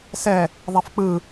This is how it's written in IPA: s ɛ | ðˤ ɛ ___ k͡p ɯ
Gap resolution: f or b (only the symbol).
f